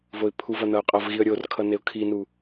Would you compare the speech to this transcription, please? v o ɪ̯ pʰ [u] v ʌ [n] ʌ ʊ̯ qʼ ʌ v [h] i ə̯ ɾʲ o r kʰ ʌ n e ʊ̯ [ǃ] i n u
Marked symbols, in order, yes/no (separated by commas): yes, yes, no, no